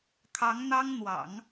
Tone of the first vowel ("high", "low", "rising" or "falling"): rising